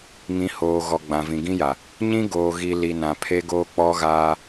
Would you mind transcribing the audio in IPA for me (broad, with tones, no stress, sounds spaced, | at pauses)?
ŋ ĩ˨˦ h oː˨ ɣ ɔ˨ ɡ͡b ã˨ v ĩ˨ ɡ ĩ˦ j a˨ | ɲ ĩ˦ ɡ oː˨ ɣ i˨ l i˨ n ã˨ pʰ e˦ ɡ oː˦ k͡p ɔ˦ ɣ aː˦